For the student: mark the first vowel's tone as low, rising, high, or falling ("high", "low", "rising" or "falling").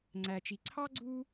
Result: low